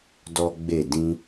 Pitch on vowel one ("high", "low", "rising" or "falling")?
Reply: high